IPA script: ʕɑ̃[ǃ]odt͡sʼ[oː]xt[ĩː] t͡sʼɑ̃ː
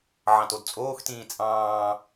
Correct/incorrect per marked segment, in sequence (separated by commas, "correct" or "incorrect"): incorrect, correct, correct